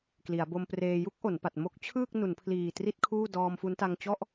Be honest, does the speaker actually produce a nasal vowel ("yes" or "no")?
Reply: no